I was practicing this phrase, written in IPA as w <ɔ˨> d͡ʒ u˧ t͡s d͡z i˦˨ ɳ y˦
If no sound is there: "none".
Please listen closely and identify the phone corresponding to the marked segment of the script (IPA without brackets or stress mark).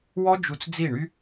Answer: ɔ˦